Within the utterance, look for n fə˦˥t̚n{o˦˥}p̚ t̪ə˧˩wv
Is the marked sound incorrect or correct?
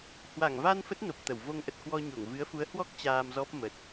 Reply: incorrect